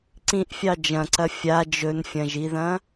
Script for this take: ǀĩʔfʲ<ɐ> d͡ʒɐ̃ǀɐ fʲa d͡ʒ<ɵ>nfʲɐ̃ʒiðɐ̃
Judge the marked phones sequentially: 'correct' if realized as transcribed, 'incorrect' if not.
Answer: incorrect: ɑ, correct

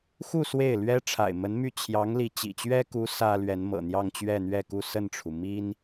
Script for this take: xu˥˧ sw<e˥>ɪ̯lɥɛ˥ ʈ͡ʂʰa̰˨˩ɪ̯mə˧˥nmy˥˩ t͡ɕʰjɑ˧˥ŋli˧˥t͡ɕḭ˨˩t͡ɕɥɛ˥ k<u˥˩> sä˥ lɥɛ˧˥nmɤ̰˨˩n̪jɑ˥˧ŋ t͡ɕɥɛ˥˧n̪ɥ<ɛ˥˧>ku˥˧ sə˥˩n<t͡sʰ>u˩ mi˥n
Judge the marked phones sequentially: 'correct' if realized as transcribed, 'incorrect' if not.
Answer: incorrect: e˥˩, incorrect: u˧˥, correct, incorrect: ʈ͡ʂʰ

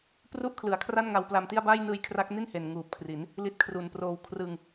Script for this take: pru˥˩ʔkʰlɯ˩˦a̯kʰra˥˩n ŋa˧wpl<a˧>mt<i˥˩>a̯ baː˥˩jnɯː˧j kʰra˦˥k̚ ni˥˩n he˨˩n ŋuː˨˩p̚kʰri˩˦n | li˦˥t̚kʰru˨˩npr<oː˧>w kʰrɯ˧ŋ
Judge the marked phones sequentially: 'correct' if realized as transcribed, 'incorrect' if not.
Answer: correct, correct, correct

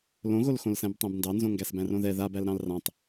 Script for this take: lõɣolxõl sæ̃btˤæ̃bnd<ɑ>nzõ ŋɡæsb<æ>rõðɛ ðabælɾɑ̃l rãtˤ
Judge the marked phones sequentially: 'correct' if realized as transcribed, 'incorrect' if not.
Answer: correct, incorrect: æ̃

